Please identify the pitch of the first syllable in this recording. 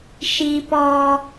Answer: high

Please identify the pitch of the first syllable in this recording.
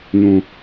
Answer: low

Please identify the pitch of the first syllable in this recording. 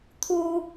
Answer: high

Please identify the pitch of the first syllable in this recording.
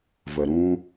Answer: low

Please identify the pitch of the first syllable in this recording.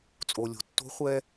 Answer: low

